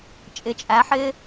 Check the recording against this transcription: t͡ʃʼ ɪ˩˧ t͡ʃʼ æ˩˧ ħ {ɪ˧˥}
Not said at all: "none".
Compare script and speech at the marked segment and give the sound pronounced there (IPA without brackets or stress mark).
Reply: ɪ˧